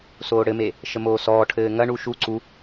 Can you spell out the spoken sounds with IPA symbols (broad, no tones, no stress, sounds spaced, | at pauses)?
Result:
s oː ɽ ɘ m e | ʃ ə m oː s ɔː ʈʰ ɘː ŋ ɐ ɳ u ʃ u ǀ u